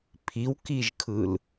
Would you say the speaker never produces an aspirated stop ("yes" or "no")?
no